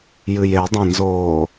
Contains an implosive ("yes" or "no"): no